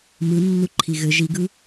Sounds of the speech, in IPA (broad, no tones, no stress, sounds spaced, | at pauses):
m ɯ nː u ǃʰ i ɣ ɘ ʒ i ɡ ɯ